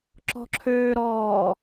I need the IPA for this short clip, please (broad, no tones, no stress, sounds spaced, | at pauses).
ǁ ɔ̤ ǁʰ øː ɾ ɔː